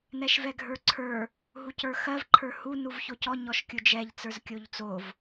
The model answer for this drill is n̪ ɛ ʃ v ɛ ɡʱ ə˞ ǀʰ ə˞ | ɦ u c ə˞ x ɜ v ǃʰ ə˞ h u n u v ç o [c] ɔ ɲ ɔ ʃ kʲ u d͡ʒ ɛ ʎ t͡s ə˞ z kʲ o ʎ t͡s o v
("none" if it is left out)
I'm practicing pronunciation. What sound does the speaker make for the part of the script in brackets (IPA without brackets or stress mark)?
c